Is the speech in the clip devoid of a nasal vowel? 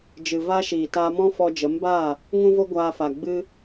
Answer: no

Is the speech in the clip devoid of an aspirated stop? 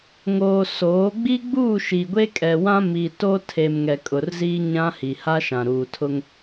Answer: no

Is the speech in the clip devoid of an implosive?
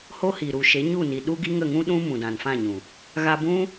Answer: no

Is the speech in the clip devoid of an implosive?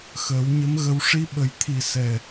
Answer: no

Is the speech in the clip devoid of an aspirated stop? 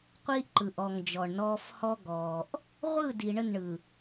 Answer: yes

